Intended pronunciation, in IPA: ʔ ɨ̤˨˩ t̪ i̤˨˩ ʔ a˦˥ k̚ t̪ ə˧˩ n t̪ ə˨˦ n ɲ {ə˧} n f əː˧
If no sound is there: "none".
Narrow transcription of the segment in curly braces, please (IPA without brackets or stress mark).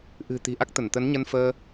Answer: ə˧